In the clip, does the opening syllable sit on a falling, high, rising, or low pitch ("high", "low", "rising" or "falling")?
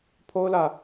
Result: high